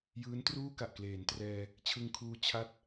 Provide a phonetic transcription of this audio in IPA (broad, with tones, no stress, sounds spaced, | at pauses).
j ɯː˦˥ n t r uː˥˩ k a˨˩ ʔ k l eː˩˦ n t r ɛː˧ | t͡ɕʰ ɯ˧ ŋ kʰ uː˧ t͡ɕʰ a˥˩ t̚